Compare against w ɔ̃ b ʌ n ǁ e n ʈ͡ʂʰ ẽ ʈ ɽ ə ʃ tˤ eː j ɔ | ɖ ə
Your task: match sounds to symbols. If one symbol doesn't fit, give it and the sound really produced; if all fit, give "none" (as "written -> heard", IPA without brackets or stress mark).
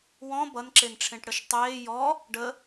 none